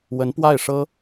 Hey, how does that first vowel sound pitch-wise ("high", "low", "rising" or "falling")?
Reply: rising